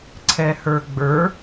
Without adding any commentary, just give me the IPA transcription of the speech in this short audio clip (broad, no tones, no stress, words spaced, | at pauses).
ǀʰɛhə˞ɡ͡bə˞